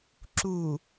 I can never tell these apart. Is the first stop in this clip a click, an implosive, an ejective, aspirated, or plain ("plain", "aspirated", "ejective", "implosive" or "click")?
click